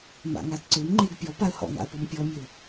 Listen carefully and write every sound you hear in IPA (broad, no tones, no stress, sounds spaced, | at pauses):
m a̰ ŋ a d ǀ ø m ŋ͡ǃ e ɡ pʲ ɔ p a ə̯ h ɔ̰ ŋ a̰ ʊ̯ p ɔ m pʲ ɔ mʲ ø ʊ̯